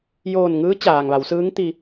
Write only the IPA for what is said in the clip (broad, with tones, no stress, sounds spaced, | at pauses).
j oː˧˩ n ŋ ɯː˧˥ t͡ɕ aː˩ ŋ ʋ a˩˧ w s ɯː˧˥ ŋ t̪ i˧